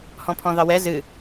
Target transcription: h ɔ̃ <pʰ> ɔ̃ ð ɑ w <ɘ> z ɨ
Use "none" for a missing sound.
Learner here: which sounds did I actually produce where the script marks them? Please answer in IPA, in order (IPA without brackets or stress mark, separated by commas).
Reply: pʰ, ɛ